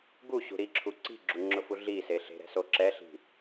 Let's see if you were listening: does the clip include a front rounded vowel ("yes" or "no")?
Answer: no